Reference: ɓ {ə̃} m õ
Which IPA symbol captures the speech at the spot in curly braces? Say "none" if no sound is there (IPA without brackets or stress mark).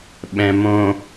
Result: ɛ̃